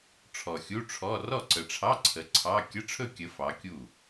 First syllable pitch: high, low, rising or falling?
low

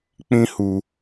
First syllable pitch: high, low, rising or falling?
high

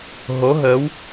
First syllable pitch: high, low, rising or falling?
rising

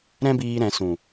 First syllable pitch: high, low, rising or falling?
high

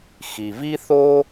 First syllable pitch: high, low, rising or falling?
low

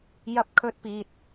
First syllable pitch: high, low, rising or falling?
high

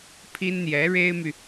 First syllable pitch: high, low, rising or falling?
high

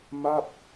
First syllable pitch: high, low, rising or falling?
falling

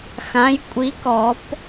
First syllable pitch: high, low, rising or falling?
rising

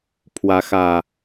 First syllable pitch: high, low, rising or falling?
rising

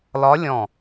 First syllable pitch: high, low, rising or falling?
rising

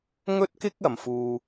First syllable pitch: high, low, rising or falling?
high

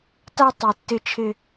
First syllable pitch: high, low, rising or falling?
high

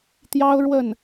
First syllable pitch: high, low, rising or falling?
high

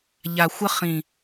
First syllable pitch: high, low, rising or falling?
low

